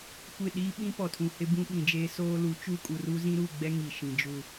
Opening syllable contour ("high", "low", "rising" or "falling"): falling